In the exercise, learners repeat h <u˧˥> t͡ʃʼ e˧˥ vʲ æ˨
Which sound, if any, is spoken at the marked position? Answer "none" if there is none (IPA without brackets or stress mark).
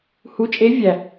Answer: u˧˥